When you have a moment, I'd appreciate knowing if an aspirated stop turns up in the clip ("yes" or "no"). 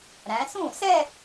no